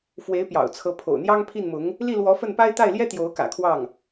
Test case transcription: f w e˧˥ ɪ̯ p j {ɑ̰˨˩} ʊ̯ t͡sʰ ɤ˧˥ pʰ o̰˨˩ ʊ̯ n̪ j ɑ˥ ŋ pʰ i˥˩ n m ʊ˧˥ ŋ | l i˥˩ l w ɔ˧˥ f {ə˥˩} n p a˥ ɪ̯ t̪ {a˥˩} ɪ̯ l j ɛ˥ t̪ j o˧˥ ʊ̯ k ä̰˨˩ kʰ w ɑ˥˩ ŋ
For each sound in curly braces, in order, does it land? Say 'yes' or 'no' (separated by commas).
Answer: yes, yes, yes